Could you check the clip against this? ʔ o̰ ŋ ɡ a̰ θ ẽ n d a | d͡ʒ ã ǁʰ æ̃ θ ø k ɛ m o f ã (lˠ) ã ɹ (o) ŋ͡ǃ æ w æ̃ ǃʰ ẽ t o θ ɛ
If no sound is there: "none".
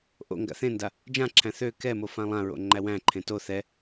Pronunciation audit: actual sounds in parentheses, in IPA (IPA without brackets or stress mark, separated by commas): lˠ, o̰